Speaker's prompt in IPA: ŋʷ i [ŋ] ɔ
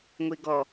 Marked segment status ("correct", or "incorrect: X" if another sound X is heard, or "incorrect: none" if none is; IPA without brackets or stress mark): incorrect: ɡ